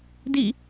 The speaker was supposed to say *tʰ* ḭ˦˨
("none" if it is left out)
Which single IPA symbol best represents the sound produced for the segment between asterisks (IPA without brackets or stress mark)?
d